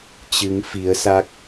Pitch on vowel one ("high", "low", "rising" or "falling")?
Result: rising